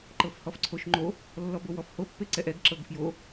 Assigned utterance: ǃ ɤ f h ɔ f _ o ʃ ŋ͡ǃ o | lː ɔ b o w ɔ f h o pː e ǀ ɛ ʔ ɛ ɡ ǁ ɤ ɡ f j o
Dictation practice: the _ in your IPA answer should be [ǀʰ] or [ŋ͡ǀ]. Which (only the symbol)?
ǀʰ